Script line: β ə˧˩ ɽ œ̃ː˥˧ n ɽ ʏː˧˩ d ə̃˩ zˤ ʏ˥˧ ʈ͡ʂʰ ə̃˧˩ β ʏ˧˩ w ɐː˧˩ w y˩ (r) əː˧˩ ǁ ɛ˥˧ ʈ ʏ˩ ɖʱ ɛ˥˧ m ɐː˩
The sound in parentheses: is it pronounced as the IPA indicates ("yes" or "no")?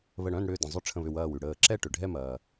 no